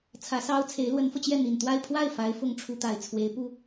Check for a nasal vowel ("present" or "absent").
absent